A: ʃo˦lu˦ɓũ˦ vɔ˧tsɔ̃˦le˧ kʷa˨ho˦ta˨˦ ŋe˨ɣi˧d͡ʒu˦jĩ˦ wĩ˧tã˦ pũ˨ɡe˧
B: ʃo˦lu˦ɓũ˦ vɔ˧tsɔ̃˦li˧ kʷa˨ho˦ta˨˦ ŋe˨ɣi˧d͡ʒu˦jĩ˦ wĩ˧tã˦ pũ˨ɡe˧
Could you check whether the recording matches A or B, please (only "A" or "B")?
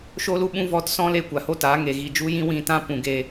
A